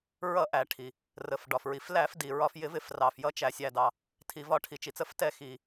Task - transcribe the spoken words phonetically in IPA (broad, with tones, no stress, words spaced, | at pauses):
ɹʌ˧˩˧ʔæ˩ ʈʰi˩ | rə˩fɖɒ˩fɹi˩f læ˧˩˧fdi˩ ɹɒ˧˩˧fjɪ˧˩˧ vɪ˧˩˧frɑ˩f jʌ˧˩˧t͡ʃæ˩sʲæ˩ dɑ˩ | tʰi˩vɒ˧˩˧ʈʰi˩ t͡ʃi˩t͡sə˧˩˧ftɛ˧˩˧xi˩